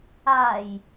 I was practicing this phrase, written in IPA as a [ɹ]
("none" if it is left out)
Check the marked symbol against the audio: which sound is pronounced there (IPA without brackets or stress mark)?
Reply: j